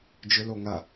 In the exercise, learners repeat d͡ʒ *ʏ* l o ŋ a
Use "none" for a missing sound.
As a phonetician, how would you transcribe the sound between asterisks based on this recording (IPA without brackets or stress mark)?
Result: ʏ